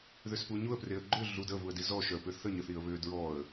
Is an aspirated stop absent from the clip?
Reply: yes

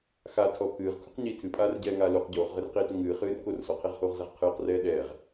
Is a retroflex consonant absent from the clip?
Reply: yes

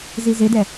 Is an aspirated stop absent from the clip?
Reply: yes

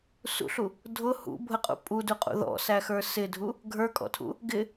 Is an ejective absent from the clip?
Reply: no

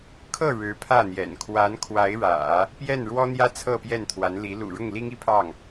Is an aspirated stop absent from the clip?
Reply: no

